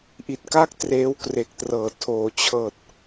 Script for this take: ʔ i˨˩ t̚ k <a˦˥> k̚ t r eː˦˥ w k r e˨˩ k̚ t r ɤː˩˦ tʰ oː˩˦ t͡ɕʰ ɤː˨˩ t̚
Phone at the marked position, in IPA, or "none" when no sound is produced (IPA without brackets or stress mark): a˦˥